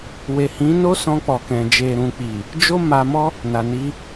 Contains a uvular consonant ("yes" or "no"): no